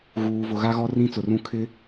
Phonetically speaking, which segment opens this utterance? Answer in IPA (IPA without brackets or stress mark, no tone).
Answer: ɣ